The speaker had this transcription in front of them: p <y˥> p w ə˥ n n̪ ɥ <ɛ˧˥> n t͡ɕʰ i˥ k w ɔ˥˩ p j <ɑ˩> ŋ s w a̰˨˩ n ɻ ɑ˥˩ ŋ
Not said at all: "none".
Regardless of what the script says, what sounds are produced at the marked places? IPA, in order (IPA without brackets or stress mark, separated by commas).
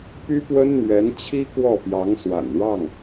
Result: y˥, ɛ˧˥, ɑ˧˥